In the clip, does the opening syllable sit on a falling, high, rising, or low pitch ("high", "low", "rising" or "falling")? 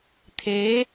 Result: rising